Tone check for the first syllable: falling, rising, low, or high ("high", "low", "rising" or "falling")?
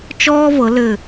high